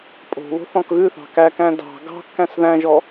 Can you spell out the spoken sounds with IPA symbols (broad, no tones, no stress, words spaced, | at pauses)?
pʼo̤βo̤θ ɔ̃kɣʉθɑ̤ kækæ̃ dɑ̤ ɡɑ̤kːæ̃s ðæ̃ʒɔ